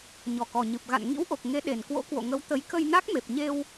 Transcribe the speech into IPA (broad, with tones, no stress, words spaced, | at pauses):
ɲɔ˨˩kɔ˨˩ɲɨ˨˩p̚ ɣa̰˧˨n ŋḭ˧˥wʔo˨˩k̚ ŋe˨˦ɗe˨˩nkwo̰˧˥ kwo̰˧˨ŋə˨˦wt̪ə˨˦j kə˧jna˦˥k̚me˨˩p̚ɲe˧w